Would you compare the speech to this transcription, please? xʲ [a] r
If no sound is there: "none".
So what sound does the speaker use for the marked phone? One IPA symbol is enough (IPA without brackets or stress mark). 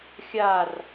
a